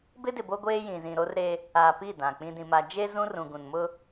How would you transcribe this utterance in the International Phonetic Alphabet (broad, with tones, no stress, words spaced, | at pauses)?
bɪ˦dɪ˨bo˦ ɡʷeː˦jĩ˨zĩ˨ ɾo˦rɾe˦ | a˨ pi˦˨dã˨ k͡pĩ˨dĩ˨ma˨d͡ʒe˦ zũ˦rũ˨ɡũ˨n mʊ˦